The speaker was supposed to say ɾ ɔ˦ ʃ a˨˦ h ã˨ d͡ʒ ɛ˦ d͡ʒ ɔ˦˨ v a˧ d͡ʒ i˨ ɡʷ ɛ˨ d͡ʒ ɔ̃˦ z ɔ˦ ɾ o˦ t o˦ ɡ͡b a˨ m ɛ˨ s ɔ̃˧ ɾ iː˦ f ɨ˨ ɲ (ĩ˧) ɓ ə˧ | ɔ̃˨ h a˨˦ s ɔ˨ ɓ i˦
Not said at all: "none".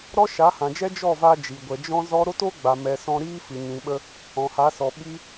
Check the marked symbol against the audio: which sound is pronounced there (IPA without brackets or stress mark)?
ĩ˨